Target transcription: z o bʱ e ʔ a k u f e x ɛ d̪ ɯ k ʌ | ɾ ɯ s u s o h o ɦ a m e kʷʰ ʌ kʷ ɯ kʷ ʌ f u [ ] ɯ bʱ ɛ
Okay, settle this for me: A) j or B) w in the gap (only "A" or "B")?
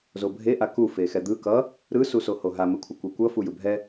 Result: A